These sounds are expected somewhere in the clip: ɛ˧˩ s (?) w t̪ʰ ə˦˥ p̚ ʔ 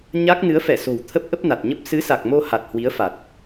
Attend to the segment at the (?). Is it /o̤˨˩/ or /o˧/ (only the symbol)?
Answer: o̤˨˩